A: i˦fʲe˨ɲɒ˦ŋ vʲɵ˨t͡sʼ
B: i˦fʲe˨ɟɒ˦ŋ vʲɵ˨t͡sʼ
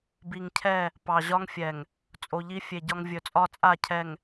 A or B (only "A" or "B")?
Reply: B